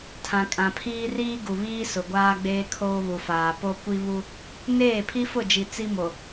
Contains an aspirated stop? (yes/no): yes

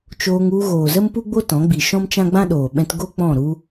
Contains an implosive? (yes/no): yes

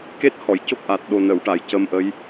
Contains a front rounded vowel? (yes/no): no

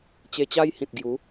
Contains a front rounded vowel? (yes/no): no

